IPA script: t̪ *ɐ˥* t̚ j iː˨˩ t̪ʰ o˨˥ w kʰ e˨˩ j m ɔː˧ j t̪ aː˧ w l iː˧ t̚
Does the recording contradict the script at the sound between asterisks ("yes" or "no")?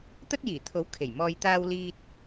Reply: no